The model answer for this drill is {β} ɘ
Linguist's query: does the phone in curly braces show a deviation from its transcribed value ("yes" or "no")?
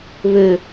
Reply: no